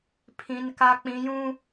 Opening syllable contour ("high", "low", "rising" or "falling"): high